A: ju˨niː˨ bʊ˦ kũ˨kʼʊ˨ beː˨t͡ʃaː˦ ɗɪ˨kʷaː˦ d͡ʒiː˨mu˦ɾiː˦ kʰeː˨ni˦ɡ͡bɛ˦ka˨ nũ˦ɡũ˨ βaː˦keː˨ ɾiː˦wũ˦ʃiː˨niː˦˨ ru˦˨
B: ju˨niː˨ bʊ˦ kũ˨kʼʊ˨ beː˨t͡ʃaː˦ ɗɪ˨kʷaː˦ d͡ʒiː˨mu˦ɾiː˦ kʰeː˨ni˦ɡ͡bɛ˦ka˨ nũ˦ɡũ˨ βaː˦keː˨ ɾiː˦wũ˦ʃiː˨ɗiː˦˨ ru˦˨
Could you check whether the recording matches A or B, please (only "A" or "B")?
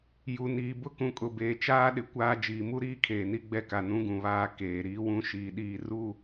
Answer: B